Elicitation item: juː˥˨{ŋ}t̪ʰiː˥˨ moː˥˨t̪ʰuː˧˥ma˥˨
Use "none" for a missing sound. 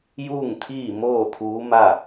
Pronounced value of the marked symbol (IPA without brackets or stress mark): ŋ